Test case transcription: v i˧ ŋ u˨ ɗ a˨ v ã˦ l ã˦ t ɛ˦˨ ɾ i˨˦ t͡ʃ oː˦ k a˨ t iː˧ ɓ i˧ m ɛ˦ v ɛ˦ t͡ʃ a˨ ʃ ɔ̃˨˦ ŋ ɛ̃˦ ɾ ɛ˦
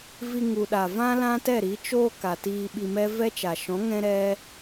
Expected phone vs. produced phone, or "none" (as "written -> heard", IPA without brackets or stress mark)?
none